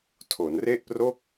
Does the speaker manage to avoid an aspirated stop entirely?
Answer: no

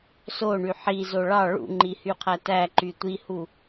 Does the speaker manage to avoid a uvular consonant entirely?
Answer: no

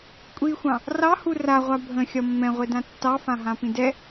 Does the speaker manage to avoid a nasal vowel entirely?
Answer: no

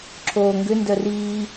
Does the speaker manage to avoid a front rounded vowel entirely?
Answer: no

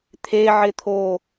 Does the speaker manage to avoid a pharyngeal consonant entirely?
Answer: no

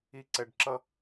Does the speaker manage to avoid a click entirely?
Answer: no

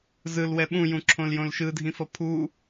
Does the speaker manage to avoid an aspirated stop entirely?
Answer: no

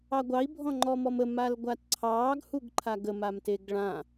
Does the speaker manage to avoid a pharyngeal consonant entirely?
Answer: yes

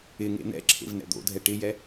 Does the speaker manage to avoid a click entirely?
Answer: no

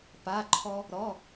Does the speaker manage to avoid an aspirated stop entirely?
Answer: no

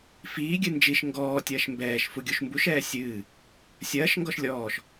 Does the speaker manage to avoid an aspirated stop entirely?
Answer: yes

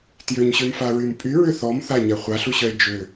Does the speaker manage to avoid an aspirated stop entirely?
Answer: yes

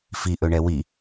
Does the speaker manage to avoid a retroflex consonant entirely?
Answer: no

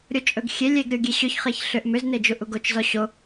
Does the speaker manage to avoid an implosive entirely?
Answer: yes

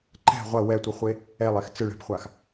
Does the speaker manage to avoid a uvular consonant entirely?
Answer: no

